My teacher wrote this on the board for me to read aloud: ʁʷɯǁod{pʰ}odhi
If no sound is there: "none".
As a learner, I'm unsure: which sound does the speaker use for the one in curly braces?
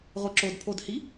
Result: pʰ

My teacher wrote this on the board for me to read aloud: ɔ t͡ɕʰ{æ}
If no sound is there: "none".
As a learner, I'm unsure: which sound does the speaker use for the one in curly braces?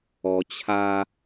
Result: a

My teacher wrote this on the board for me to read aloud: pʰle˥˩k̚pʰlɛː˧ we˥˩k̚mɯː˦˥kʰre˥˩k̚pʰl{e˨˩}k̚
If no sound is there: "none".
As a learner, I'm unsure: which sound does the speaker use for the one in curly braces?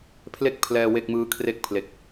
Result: e˨˩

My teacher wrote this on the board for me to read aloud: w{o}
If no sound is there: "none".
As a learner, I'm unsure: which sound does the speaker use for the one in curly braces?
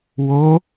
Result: o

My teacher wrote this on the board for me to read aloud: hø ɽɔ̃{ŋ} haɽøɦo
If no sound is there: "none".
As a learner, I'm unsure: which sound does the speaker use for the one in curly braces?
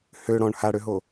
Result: ɳ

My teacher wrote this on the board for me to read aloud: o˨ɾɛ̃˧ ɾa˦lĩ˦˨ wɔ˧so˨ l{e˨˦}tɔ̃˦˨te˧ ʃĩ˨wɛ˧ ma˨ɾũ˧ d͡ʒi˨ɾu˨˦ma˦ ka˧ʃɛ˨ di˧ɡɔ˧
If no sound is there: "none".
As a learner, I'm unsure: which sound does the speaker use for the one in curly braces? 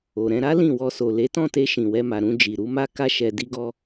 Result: e˨˦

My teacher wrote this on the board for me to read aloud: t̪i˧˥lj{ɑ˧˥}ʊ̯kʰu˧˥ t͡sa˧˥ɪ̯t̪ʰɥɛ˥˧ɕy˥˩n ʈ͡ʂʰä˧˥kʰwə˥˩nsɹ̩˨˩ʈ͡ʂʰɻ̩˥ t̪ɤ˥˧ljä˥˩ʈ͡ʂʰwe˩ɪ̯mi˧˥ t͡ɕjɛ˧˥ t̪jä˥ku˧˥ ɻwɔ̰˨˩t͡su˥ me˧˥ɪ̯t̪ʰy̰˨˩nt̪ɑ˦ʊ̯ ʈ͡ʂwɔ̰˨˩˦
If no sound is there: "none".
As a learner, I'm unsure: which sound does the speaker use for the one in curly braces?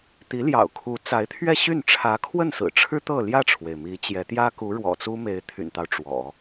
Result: ɑ̰˨˩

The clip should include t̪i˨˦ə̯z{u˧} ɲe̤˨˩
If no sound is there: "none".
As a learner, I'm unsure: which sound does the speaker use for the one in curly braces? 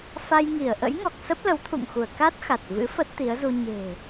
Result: u˧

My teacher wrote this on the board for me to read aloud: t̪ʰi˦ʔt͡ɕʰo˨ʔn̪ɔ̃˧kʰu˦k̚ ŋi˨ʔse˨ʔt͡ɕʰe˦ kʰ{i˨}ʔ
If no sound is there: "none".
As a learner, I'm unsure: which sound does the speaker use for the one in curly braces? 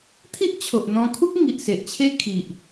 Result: i˨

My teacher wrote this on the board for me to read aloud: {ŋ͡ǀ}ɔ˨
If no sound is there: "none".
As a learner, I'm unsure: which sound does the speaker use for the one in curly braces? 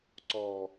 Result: ǀ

